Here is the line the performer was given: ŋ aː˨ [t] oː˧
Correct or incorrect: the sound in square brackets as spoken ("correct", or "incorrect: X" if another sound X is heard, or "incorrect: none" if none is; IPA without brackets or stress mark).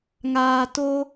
correct